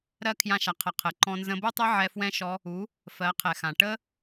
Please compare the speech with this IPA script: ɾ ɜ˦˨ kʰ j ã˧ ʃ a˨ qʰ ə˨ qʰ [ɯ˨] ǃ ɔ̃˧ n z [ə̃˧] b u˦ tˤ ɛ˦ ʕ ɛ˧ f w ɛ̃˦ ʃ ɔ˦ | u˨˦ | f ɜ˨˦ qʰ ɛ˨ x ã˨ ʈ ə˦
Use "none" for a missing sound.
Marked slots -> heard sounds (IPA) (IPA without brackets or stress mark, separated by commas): ə˨, ə̃˧